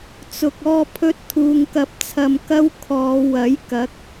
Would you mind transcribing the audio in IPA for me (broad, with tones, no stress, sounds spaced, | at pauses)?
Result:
t͡s ʊ˧ k̚ ɔː˥ pʰ ɵ˥ t̚ t̪ʰ uː˧ ŋ k ɐ˧ p̚ t͡sʰ ɐ˧ m k ɐ˥ w kʰ ɔː˨˧ w ɐ˨˥ j k ɐ˨˥ k̚